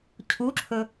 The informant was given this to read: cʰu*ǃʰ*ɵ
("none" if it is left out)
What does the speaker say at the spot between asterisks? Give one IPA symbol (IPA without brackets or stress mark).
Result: ǁʰ